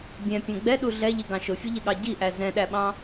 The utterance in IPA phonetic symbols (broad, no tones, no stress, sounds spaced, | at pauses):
bʲ ɛ̃ pʲ ɛ̃ ɡ͡b ɛ ɗ u ɮ ɛ ʎ i ɡ ɑ̃ ʃ ʊ fʲ ʊ ʎ ɪ ɠ ɑ ɟ i ʔ æ z ɛ̃ ɗ æ ɓ ɑ̃